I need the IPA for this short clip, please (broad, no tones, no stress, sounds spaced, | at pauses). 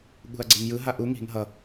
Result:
ɠ ṳ ɐ̯ ɡ͡ǀ e ŋ j ɯ ɦ a ʔ u ŋ i̤ ŋ ɦ ʌ